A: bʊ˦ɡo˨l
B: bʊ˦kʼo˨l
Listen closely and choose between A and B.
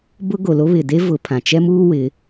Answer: A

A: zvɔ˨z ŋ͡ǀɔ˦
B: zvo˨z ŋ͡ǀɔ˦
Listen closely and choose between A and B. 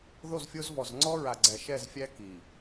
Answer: A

